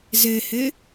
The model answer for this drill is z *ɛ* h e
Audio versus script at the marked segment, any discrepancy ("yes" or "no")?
yes